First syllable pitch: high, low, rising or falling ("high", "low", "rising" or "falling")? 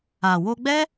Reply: low